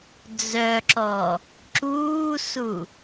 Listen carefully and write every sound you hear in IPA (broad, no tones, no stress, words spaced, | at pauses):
d͡zœǁɔ | ǁuːsu